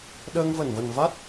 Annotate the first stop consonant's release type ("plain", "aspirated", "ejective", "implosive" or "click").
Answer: implosive